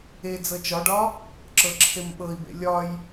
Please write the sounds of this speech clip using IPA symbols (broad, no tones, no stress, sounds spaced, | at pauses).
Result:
e d͡z ɤ t͡ʃ ɒ ɖ ɒ | ǁ ɤ ǁʰ e m ɓ ɤ i̯ b ḛ lʲ ɒ j